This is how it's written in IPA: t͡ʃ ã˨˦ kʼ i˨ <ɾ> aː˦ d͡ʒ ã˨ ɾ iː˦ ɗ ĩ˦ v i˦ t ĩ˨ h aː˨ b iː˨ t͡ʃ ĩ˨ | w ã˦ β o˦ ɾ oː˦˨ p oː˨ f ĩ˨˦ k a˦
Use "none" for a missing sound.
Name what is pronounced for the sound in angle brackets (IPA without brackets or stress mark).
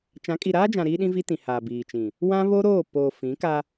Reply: ɾ